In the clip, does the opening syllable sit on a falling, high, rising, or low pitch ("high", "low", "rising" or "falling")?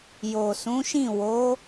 low